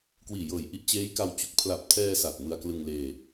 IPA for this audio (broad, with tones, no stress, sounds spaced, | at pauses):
k w iː˨˩ j ɤː˨˩ j ʔ i˦˥ ʔ t͡ɕ eː˦˥ j k a˧ w t͡ɕ u˦˥ k̚ pʰ l a˨˩ p̚ tʰ ɛː˧ s aː˨˩ t̚ m ɯ˧ a̯ k l ɯ˧ ŋ l eː˧